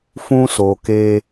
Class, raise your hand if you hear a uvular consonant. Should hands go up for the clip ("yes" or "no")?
no